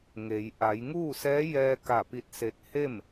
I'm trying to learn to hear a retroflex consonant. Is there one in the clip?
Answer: no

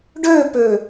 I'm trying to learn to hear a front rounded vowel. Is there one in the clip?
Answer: yes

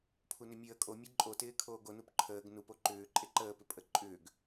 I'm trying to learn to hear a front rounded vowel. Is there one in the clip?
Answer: yes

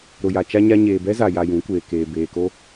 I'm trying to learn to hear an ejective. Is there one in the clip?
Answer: no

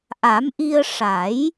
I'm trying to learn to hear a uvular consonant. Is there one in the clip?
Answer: no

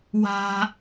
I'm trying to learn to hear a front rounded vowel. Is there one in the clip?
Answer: no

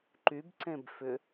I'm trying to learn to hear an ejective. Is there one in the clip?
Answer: no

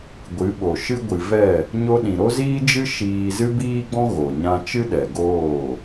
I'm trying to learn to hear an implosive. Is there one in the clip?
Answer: yes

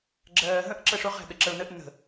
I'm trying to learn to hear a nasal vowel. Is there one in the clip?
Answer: yes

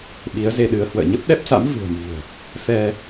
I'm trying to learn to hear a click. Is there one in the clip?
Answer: no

